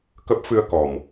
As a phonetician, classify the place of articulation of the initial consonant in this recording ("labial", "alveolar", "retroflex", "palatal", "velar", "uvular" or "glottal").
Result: velar